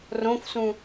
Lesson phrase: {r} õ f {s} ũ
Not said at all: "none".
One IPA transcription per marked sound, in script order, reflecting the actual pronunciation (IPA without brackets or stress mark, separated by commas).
r, s